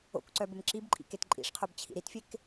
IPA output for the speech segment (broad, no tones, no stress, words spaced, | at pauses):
o̰kǀœ bɘmǁibǃʼḭ ketǃʼḭʂqʰob t͡ɕʰḭɾitfʲek